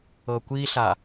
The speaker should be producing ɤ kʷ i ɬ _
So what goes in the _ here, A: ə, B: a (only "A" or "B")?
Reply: B